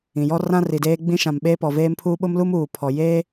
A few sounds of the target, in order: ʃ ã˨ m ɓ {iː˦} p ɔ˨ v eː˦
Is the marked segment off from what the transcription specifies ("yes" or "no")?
yes